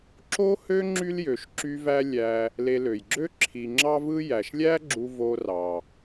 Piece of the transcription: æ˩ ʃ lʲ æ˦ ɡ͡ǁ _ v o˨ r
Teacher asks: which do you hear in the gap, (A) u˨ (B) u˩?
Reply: A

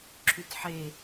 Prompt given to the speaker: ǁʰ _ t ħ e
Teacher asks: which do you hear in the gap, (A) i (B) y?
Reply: B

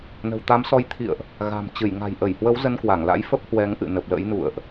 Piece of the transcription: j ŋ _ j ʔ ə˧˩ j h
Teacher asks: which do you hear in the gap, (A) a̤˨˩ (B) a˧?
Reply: A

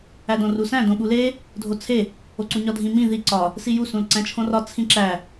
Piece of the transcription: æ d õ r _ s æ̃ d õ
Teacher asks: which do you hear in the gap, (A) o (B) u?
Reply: B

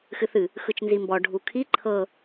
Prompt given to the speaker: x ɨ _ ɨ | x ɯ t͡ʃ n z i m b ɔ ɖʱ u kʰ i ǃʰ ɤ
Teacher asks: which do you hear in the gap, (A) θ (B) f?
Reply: A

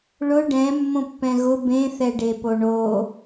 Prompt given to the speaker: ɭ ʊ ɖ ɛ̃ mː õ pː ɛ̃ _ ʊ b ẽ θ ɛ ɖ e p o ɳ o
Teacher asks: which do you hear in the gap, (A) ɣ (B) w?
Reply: A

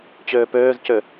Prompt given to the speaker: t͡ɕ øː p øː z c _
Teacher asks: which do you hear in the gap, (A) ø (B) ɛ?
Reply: A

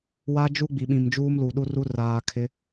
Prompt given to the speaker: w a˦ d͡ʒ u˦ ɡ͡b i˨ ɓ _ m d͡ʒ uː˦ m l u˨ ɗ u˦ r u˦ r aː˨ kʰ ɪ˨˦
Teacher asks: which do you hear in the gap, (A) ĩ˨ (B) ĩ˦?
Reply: A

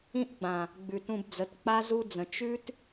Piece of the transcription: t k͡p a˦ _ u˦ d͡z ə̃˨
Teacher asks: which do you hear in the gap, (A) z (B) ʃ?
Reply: A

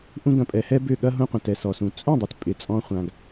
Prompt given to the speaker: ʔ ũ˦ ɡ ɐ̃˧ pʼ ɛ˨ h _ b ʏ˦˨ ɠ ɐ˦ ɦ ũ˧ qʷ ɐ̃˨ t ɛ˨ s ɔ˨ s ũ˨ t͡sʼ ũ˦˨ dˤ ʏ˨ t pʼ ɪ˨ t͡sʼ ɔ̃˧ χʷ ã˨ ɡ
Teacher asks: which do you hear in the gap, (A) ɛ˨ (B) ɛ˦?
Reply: B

